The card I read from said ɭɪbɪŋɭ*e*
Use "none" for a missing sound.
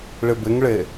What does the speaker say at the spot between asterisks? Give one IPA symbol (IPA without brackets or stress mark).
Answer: e